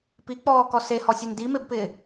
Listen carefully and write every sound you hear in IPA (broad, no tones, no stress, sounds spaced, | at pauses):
p i k͡p ɔː k ɔ s e h ɔ sʲ e n d i m e b p ɪː